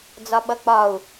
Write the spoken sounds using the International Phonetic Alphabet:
d͡z ɒ ɓ ʌ k͡p ɒ u̯

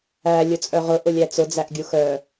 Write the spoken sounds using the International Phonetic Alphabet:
æ lʲ ʊ t͡sʼ œ ʁ ʊ ʔ ʊ lʲ æ t͡s ʊ d͡z æ ʔ ɡʲ u x œ

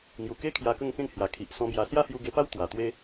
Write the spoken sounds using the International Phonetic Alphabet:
ŋ j u˨˩ k e˦ kʰ j a˧ k ə˥˧ ŋ k ẽ˥˧ ŋ h j a˨˩ kʰ i˨ ʔ s ɔ̃˧ b j a˧ s j a˦ h j u˧ ɡ e˧ p a˦ w t̪ w a˨˩ t̪ w e˦

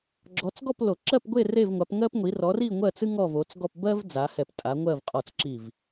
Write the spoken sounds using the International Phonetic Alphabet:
ɡ͡ǁ ɔ˨˦ t͡s ɡ ɔ˥˧ p l o˨˩˦ ǁ ɜ˥˧ p ɡʷ e˥˧ r e˥˧ v ŋʷ a˨˦ p ŋ ɜ˥ p ŋʷ i˨˦ r ɔ˨˦ r i˥˧ ŋʷ ɜ˥˧ t͡s ɨ˥ ŋ ɔ˥˧ v o˨˦ t͡s ɡ ɔ˥˧ p b ɜ˥ v d͡z a˨˦ h ɛ˧˩ p tʼ a˨˦ ŋʷ ɜ˥˧ v qʼ ɔ˧˩ t͡s ǁ i˧˩ v

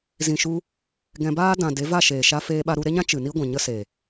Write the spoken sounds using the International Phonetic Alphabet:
z ĩ˨ ʃ u˧ | ɡ ɛ̃˧ b aː˦ d ã˨ d e˨˦ v a˦˨ ʃ eː˨ ʃ a˧ f eː˧ ɓ a˧ ɾ u˧ ɾ e˦ ɲ ã˦ t͡ʃ ɨ˨ n i˦ ɡʷ ɛ̃˨ ɲ ə˦ s e˨

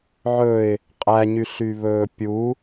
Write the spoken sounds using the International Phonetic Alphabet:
ʕ ɵ ɪ̯ | qʼ æ ɲ y ɬ y β ɵː pʲ u

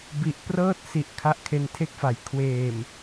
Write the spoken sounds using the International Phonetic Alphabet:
b i˨˩ ʔ p r ɤː˥˩ t̚ s i˨˩ ʔ kʰ a˦˥ ʔ kʰ e˧ n tʰ e˥˩ k̚ f a˩˦ j kʰ w eː˨˩ m

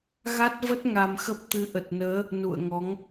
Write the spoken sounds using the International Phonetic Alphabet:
ɣ a˦˥ t̚ v ə˦˥ t̚ ŋ a˧ m x ə˦˥ p̚ t̪ ɨ˨˦ ʔ ə˨˩ t̚ n əː˨˦ | n ṵ˧˨ ə̯ ŋ ɔ˨˦ ŋ

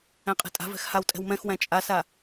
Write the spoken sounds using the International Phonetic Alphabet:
æ̃ qʼ ɛ̤ tʼ a̤ v ɛ̤ x h a w tʼ ɛ̤ w m ɛ̃ x w æ̃ t͡ʃʼ a s a

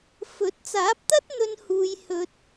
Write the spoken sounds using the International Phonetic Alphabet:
f ɵ˨˥ t̚ t͡s aː˨˥ p̚ t̪ ɐ˥ t̚ n̪ ɵ˧ n h uː˧ j h ɵ˧ t̚

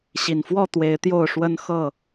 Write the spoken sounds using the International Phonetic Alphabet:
ɕ i˨˩ n f w ɔ˥˨ t̪ w e˨˦ ɪ̯ t̪ j o˥˨ ʊ̯ ʂ w ə˦ n x ɤ˥˨

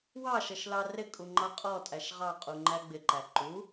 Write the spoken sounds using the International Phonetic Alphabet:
w ɑ ʃ ʌ ʃ l ɑ r ɪ kʼ u ŋ͡ǃ ɑ qʼ ɔ tʼ æ ʃ ʁ ɑ qʼ u ŋ͡ǃ æ ɡ͡b ɪ ǃ æ ǃ u

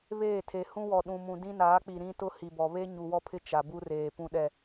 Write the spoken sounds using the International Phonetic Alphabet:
β eː˦˨ tʰ e˨ h ũ˦ w ɔ˨ ɗ ũ˨ m ũ˨ d ĩ˦ n aː˨˦ k͡p i˨ ɾ ĩ˦ t ʊ˦ h i˨ b ɔ˨ β e˦ ɲ u˨ w ɔ˦ pʰ ɪ˦ t͡ʃ a˨ b u˦ r eː˨ p ũ˨ ɗ ɛ˨

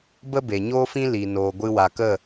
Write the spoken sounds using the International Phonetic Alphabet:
b ə˦ b e˨ ɲ oː˦ f ĩ˦ l i˨ n oː˨ ɡʷ ɨ˧ w a˨ k ə˦˨

